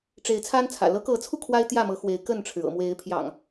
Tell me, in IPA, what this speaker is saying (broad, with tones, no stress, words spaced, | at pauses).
ʈ͡ʂe˨˦ɪ̯t͡sʰa˦nt͡sʰä̰˨˩ lɤ˨˦kɤ˨˦t͡sʰu˧ kʰwa˦ɪ̯t̪jä˥˨mɤ˨˦ xwe˨˦ɪ̯kə˥˨nʈ͡ʂʰɻ̩˩ ɤ̰˨˩mwe˨˦ɪ̯pʰjɑ̰˨˩ŋ